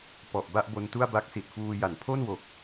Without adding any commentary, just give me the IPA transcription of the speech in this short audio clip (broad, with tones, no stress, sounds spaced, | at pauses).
p ɔ˨˩ ʔ b a˥˩ ʔ b o˧ n t u˥˩ a̯ b a˦˥ k̚ s i˨˩ t̚ f uː˧ j a˩˦ n pʰ o˥˩ n w o˨˩ k̚